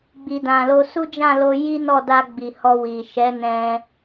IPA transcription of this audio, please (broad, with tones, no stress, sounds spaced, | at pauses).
ɡ͡b i˨ d ã˨ l o˧ s u˦ d͡ʒ ã˦˨ l o˧ j i˦ n ɔ˦˨ d a˧ ɡ͡b i˨ h ɔ˧ w i˨ ʃ ɛ˨˦ n ɛ̃˧